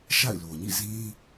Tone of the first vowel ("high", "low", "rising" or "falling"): falling